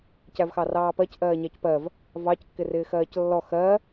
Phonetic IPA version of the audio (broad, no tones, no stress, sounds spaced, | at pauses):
c æ v x ɑ r ɑː p ɜ c ʔ ɜː ɲ æ c p ɜ v | v ɑ c kː ɪ r ɪː x ɜː c lː ɔ x ɜ